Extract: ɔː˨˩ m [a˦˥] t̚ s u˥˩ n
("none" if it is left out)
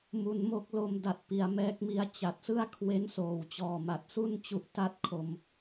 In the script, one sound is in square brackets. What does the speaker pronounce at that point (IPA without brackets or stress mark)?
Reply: a˨˩